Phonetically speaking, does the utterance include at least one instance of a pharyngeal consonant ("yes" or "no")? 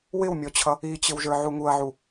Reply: yes